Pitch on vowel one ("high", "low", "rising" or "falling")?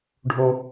high